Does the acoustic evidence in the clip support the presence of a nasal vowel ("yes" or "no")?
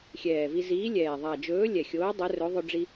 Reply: no